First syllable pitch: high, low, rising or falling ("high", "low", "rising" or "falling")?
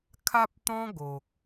high